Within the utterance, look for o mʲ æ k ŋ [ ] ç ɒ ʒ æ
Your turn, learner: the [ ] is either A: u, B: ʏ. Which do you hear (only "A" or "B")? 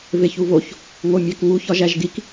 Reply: A